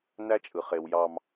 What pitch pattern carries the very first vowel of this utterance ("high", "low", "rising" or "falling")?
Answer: high